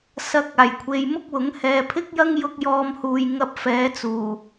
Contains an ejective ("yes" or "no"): no